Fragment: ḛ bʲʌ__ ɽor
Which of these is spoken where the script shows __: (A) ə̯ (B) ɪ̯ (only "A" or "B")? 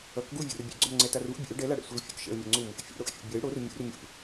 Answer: B